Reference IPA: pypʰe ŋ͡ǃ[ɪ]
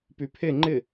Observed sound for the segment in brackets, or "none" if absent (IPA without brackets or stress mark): ɪ